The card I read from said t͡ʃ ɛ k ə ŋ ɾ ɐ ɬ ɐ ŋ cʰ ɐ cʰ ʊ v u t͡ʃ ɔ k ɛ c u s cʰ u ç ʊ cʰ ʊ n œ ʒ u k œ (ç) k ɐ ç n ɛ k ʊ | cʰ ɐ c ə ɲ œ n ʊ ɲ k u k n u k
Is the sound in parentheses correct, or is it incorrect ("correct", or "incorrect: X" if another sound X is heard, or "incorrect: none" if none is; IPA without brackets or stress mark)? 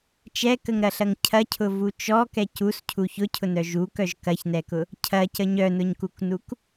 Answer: incorrect: ʒ